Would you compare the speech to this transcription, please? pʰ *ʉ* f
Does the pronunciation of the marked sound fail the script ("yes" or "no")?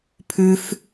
no